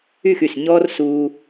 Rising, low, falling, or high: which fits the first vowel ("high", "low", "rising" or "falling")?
falling